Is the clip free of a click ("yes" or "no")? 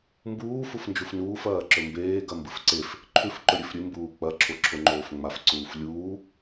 no